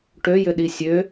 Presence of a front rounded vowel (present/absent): present